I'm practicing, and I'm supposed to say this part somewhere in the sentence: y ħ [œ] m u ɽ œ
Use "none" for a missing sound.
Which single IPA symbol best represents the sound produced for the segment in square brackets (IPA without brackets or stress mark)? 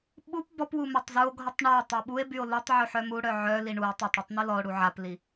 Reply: œ